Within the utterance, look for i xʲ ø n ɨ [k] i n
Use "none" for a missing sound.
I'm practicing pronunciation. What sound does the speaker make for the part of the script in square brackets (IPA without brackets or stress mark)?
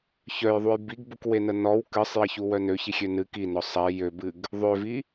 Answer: k